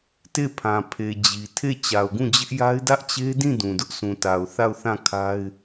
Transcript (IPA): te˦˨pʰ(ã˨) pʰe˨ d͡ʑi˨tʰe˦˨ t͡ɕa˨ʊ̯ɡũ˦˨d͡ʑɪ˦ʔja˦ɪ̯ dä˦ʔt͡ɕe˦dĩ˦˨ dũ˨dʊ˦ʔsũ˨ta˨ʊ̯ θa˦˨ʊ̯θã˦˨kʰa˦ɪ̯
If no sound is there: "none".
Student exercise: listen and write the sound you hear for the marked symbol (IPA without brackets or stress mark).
ã˨